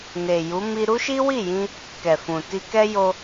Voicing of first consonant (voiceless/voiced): voiced